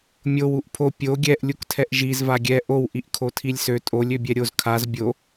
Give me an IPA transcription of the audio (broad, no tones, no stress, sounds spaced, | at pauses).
mʲ o w u ʔ pʰ o pʲ o ɡʲ ɛ ʔ lʲ u k tʰ ɛ ʔ ʒ i z v a ɡʲ ɛ ʔ o w ʔ i ʔ kʰ o tʰ i lʲ s ø tʼ o lʲ ø bʲ ɛ ɾʲ o z kʰ a z bʲ o